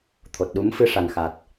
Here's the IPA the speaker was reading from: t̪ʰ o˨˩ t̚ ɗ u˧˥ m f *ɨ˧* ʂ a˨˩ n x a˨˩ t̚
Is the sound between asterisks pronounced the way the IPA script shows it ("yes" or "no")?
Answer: yes